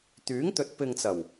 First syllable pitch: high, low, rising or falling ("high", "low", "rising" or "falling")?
rising